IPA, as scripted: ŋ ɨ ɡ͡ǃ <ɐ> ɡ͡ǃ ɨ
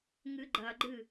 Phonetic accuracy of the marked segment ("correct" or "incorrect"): correct